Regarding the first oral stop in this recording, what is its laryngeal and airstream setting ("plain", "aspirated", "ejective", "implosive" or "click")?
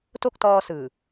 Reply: plain